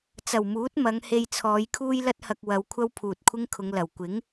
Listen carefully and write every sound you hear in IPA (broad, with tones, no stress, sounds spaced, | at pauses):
t͡s ɐ˨˩ w m uː˨˥ t̚ m ɐ˨˧ ŋ h e˧ j t͡sʰ ɔː˨˧ j kʰ uː˥ j l ɐ˥ t̚ h ɐ˧ k̚ w ɐ˨˧ w kʷʰ ɐ˥ w pʰ uː˨ t̚ kʷʰ ɪ˥ ŋ kʰ ʊ˨˧ ŋ l ɐ˨˩ w kʷ ɪ˨˥ ŋ